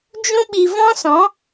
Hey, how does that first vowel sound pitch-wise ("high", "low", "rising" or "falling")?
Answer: high